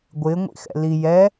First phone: ɡʷ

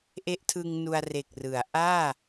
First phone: ʔ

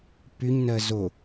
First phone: p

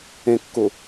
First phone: ẽ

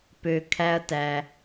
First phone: p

